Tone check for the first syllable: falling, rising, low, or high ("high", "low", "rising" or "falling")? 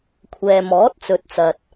low